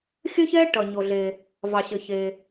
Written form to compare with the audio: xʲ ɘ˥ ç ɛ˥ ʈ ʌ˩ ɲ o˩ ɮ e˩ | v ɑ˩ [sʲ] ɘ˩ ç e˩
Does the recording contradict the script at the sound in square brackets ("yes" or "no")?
yes